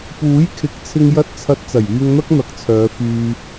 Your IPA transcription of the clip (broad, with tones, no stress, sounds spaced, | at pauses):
p uː˨˥ j kʰ ɪ˨˥ k̚ t͡sʰ ɪ˧ ŋ j ɐ˧ t̚ t͡sʰ ɐ˨˥ t̚ t͡s ɐ˨˩ j yː˧ ŋ n̪ ɐ˥ k̚ n̪ ɐ˨˥ k̚ t͡sʰ œː˨˧ f yː˧